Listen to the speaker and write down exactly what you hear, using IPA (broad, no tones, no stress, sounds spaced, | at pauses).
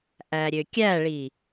ʔ æ ɾʲ ø kʲ æ ɭ i